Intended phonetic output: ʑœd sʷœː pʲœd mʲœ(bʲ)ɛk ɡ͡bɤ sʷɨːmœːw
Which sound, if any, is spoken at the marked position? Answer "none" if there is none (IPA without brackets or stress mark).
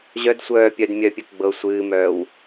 pʲ